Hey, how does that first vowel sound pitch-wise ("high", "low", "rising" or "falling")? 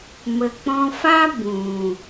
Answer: low